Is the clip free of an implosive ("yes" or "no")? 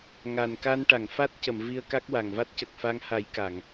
yes